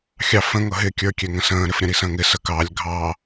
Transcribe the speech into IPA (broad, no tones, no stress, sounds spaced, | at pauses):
xʲ ɑ f ə̃ ŋ ʌ ɦ ɪ kʲ ə˞ kʲ ɛ ŋ ə̃ s ə̃ː ɾ ɪ f ɾʲ ə̃ ɾ i s ə̃ː ŋ ɪ s ə k ɑ lʲ ɡʱ ɑ